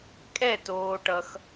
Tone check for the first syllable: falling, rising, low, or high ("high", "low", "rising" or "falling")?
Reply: falling